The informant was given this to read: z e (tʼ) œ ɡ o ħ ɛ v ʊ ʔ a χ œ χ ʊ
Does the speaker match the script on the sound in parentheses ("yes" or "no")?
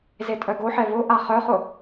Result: yes